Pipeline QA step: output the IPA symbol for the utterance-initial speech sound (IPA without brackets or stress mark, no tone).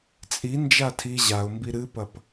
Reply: t͡sʼ